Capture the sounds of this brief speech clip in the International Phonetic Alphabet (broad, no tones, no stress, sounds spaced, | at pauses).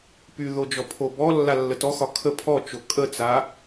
p y ð o d͡ʒ ɔ pʰ o b ɔ lː a lː ə t ɔ x ɒ kʰ ə pʰ ɔ t͡ʃ o kʼ ə t͡s a